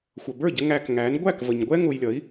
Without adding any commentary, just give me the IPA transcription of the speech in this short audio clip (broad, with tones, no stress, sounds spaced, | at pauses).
xʷ ʌ˩ b ə˞˥˩ ɟ ə˧ ŋ æ˧ k ŋ æ˩˥ n ɡʷ æ˥˩ k v ə˩ ɲ ɡʷ ɛ˥ ŋ ʊ˧ j lʲ ʌ˩˥ i̯